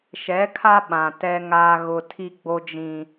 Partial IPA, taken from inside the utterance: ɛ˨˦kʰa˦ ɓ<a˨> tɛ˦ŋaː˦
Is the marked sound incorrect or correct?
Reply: incorrect